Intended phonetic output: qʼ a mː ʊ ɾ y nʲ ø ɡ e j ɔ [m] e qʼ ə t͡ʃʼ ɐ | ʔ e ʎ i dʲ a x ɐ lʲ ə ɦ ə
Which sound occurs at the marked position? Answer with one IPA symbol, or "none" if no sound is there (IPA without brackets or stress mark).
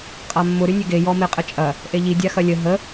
m